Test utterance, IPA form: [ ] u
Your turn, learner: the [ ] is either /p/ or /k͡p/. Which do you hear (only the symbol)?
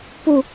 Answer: p